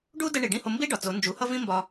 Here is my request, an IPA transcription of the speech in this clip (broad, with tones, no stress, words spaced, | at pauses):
ɖu˥ də˧ ɳi˩ɖĩ˥˩ho˧ mbi˥ ɖɒ˩t͡so˩˥ nd͡ʒu˩˥hʌ˥vĩ˥ mbɒ˧